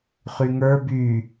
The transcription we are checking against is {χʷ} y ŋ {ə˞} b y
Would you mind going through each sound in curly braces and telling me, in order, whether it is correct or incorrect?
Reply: incorrect, correct

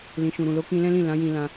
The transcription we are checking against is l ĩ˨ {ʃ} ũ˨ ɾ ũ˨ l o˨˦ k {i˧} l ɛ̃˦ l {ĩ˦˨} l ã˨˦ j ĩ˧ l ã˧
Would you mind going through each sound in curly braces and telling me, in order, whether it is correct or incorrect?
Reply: correct, incorrect, correct

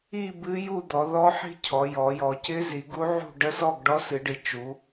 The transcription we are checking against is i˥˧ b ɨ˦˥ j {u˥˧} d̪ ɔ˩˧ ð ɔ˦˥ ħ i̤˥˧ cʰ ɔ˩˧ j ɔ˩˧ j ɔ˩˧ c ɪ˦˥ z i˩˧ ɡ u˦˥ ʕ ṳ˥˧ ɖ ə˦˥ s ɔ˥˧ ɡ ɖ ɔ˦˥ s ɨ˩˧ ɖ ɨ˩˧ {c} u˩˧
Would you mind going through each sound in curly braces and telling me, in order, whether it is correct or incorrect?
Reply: correct, incorrect

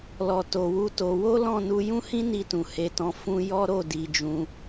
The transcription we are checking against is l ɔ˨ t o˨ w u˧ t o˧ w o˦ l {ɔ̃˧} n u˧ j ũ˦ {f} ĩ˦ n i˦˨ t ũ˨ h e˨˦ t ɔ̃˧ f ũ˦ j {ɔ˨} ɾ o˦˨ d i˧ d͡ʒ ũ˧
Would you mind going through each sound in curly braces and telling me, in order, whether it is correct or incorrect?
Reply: incorrect, incorrect, incorrect

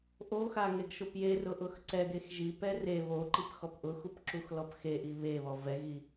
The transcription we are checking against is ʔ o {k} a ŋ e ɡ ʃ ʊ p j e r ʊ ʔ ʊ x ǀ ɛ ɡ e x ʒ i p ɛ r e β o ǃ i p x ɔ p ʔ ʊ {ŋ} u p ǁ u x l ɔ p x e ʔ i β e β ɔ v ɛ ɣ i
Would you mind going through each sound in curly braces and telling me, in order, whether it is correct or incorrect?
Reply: incorrect, incorrect

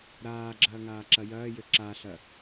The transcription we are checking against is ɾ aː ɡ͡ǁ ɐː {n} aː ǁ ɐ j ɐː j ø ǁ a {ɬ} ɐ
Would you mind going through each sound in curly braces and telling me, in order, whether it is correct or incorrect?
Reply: incorrect, correct

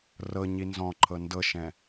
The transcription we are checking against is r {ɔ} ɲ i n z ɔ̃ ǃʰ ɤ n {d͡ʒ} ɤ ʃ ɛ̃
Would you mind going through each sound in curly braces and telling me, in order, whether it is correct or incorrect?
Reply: incorrect, incorrect

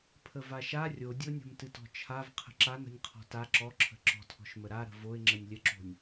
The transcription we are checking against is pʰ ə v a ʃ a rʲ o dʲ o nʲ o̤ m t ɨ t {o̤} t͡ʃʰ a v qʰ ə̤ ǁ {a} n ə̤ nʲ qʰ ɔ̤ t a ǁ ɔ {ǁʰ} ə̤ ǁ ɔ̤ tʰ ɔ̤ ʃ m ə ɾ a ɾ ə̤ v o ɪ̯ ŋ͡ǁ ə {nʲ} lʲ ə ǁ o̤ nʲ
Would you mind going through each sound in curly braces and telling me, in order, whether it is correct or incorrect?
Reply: incorrect, correct, correct, correct

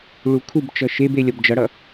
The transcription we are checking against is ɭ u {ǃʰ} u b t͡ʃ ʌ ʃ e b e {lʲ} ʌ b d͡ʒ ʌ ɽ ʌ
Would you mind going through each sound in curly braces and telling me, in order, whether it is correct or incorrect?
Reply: incorrect, correct

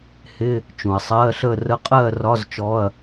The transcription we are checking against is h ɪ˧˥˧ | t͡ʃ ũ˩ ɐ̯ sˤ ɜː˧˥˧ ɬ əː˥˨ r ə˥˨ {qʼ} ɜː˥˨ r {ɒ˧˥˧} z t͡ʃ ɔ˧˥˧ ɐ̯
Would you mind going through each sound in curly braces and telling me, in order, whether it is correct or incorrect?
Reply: correct, correct

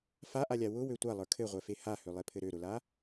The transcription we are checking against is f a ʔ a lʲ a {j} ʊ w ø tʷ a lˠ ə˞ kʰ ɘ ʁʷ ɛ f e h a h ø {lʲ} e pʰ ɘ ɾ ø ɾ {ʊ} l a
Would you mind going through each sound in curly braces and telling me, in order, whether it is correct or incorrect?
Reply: incorrect, incorrect, correct

